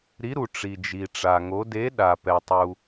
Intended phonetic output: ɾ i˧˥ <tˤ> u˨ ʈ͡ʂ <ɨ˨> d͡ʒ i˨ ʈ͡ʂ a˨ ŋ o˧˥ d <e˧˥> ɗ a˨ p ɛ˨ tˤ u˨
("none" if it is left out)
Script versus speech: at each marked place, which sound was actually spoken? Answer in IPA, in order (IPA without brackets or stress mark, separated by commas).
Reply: ɾ, i˨, e˧˥